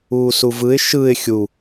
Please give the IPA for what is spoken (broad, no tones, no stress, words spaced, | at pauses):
uːsuvɯɪ̯ ʃɯɪ̯ xʲu